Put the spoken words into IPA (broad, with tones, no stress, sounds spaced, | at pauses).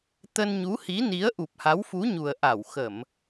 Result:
t̪ ə˧ n ɲ u˨˦ h i˨˦ n i˨˦ ə̯ ʔ u˨˩ p̚ h a˨˦ w f u˨˦ ɲ u˨˩ ə̯ ʔ a˧˩ w x ə˧˩˨ m